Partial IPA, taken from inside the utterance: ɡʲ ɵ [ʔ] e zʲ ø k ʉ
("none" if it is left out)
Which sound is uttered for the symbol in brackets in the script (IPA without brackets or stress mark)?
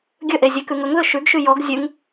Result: ʔ